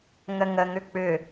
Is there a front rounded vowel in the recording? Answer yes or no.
yes